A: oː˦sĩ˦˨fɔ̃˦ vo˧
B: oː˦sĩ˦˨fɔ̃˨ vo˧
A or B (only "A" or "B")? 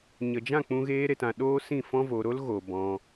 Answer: A